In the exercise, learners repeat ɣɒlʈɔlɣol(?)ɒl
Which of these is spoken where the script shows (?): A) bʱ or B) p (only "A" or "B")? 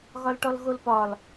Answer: B